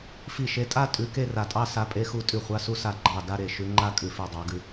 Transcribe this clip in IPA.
fi˧˩ʃe˨˦tʼa˥˧ tʼʉ˨˦ke˥˧ra˧˩tʼɑ˥˧ sa˨˦pʼe˨˦xu˨˦ tʼʉ˧˩χʷa˨˦su˨˦ sa˧˩ ɡ͡ǃɑ˧˩ da˥˧ɾe˧˩ ʃʉ˨˦ ŋ͡ǃa˥˧kʼʉ˧˩fʉ˧˩ dˤɑ˨˦ɡʉ˨˦

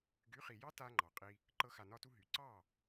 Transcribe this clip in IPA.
ɡy˨˦χi˨jɑ˦ ta˦ŋ͡ǃɑ˨qʼi˧ | ǃɤ˦xa˧nɒ˦tu˦ ɦy˨ ǀɑ˦˨

